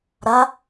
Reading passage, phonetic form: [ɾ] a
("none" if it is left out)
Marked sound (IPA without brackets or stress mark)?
ɾ